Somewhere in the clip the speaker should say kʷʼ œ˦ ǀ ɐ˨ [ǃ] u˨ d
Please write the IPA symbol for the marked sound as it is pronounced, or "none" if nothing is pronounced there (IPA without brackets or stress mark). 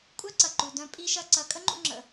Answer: ǃ